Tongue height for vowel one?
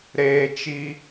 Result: mid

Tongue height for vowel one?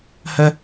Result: mid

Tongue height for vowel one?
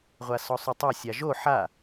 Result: low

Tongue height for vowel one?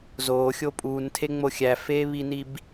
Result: mid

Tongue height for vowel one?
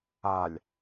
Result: low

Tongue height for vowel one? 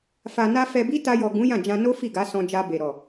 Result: low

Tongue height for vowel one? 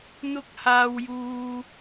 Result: high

